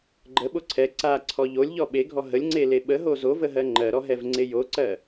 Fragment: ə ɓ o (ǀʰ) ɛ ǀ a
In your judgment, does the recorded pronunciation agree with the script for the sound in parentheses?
yes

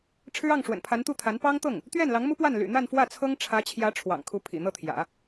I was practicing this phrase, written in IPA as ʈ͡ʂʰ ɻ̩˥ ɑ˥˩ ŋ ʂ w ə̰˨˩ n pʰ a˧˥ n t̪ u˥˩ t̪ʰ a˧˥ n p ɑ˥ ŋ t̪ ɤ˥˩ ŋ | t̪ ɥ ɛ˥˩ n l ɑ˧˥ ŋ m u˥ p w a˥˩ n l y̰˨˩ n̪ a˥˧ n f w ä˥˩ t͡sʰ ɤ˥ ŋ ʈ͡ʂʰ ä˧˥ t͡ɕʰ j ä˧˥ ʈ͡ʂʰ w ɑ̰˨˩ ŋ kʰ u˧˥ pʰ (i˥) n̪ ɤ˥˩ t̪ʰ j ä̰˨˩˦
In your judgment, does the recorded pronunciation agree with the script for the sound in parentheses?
no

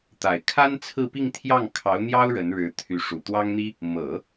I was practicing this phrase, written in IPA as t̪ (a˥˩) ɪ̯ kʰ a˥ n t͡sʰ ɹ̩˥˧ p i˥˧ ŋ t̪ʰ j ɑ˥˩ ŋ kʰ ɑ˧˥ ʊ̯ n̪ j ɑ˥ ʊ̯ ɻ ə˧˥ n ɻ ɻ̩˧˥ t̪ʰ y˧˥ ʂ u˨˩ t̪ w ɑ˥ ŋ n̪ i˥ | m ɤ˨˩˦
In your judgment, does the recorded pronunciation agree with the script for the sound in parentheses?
no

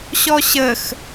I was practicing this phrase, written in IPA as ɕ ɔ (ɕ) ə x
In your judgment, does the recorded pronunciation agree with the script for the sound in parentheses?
yes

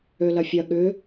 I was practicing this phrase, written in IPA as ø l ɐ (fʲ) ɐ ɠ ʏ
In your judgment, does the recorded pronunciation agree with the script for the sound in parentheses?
yes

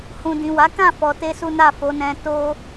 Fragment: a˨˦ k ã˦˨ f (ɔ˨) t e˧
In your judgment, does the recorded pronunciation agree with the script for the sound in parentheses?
yes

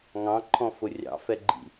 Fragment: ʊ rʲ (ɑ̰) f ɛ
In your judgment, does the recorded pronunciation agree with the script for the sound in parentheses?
yes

